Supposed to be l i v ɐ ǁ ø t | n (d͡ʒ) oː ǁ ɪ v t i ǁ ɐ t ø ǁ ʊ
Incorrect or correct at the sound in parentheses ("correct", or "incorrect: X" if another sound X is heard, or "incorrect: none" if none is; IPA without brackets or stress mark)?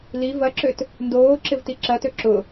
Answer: incorrect: d